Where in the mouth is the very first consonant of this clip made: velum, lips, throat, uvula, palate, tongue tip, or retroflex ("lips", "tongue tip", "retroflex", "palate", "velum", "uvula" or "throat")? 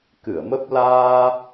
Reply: velum